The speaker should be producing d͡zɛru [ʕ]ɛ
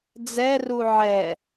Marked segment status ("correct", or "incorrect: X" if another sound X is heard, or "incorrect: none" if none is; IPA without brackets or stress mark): correct